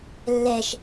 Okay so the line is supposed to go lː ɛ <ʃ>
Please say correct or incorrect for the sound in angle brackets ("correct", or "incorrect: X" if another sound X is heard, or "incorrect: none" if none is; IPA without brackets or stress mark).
correct